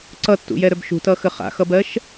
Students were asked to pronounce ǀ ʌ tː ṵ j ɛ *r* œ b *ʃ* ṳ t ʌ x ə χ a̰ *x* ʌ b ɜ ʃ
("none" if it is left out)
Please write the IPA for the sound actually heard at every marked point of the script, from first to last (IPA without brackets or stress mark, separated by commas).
ɾ, ʃ, x